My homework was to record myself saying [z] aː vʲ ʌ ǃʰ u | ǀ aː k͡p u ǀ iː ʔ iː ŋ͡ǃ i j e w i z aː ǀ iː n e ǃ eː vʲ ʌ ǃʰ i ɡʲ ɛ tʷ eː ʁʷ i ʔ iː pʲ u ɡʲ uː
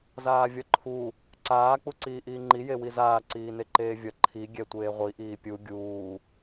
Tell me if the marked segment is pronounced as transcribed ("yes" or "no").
yes